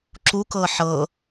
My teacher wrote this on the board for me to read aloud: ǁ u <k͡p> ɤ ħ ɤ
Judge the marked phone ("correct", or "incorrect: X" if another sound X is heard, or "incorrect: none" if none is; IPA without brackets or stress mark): incorrect: k